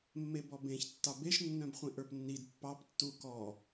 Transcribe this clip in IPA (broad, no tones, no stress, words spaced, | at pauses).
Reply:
mːebɔbẽç tːɑbeʃ nːœ̃bχʷĩʔə˞pnːid pːɑp tːukɔ